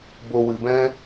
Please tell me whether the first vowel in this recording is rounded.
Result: yes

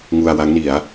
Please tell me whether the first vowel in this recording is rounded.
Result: yes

